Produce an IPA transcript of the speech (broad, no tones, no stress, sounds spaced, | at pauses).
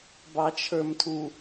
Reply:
b ɑ t͡ʃʰ ə˞ m tʰ u